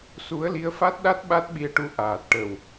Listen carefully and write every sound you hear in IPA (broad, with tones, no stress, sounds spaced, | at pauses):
s u˧˥ ə̯ l i˧˥ ə̯ f a˦˥ t̚ ɗ a˦˥ t̚ ɓ a˦˥ t̚ ɓ i˧ ə̯ ʈ u˧ ʔ aː˨˩ t̚ ʈ ə˨˩ w